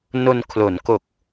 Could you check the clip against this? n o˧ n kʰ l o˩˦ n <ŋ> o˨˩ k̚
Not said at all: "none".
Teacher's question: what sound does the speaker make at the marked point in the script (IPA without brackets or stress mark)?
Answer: k